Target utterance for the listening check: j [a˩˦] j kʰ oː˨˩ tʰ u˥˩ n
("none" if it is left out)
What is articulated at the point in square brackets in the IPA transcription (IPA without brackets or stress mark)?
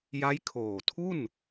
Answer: a˦˥